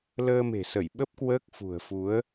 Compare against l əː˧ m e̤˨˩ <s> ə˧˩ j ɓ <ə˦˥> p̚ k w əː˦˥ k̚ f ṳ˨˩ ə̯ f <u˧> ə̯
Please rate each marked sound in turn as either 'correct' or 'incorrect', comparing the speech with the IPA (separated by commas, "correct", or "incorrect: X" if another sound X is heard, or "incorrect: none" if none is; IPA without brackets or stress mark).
correct, correct, incorrect: u˨˦